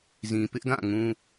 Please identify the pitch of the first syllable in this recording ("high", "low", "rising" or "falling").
low